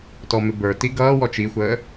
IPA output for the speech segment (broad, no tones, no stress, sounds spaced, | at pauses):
t ɔ m ɪ b ə˞ t i ɡ ʌː w ɔ t͡ʃ i xʷ əː